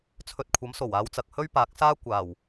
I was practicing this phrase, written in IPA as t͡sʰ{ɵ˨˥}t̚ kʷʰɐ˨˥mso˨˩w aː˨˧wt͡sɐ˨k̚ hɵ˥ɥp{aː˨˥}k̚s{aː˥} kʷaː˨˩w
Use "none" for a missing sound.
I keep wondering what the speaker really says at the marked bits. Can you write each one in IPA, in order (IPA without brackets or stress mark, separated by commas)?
ɵ˧, aː˨˥, aː˥